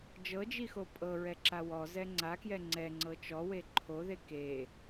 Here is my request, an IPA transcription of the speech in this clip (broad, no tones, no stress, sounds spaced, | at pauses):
d͡ʒ ɤ d͡ʒ i x o pʼ ɤ ɹ ɛ ǁ a w ɔ z ɛ ŋ͡ǀ a k j ɛ ŋ͡ǀ ɛ ŋ͡ǀ ɤ t͡ʃ ɔ w e ǃʰ o ð e k e